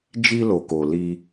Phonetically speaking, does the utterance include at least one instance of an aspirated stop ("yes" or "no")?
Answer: no